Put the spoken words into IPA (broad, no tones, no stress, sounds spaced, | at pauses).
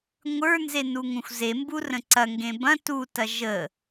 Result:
ŋʷ ə˞ n z e n u ŋ ũ xʷ z e m b u r ə̃ ǀ ɐ ŋ ɡ ẽ b ɐ̃ t u t ɐ ʒ ə